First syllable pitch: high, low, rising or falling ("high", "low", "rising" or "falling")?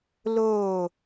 falling